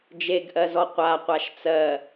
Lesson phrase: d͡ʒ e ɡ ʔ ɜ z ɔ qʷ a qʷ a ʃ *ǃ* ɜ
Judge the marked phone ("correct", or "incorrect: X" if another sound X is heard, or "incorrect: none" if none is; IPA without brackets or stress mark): incorrect: t͡s